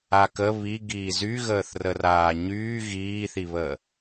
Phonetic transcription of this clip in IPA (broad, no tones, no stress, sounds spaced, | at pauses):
a k ə β i ɡ iː z y ɣ əː θ r ə r aː ɲ yː ɣ iː θ i β əː